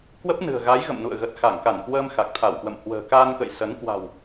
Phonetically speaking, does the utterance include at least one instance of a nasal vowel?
no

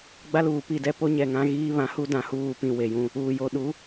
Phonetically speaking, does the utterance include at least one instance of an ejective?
no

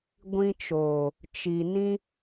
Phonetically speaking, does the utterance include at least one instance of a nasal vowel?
yes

